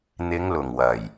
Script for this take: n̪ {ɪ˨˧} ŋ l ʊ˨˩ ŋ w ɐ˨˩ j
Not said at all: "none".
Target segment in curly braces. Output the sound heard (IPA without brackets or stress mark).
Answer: ɪ˨˧